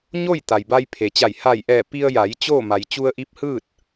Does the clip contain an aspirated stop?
yes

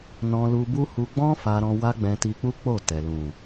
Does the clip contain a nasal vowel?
yes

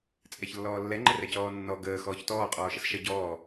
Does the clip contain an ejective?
yes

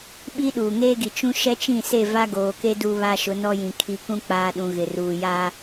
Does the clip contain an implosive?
yes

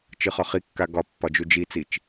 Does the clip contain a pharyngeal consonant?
no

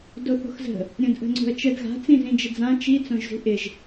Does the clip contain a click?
yes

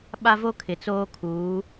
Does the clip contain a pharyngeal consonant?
no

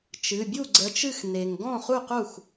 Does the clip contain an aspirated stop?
no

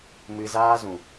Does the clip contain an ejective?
no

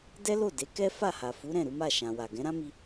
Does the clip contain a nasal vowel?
yes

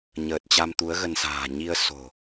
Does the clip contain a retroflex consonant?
no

